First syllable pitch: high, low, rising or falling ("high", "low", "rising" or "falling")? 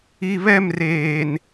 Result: low